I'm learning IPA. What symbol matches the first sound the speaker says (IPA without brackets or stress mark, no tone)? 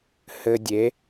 h